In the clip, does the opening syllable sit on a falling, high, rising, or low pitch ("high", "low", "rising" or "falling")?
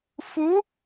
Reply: rising